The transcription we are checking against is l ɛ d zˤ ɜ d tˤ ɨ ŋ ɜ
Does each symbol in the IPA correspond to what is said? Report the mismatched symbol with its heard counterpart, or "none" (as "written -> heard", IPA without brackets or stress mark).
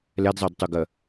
ŋ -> ɡ